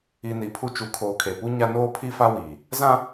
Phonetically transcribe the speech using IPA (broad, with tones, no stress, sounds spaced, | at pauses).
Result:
i˨ n i˨ pʰ u˦ t͡ʃ u˨ kʰ oː˨ kʰ e˨ p u˦ ɲ a˦ n oː˦ pʰ i˦ f a˦ w iː˨ | z ã˦